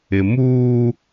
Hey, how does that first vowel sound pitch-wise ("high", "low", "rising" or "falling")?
low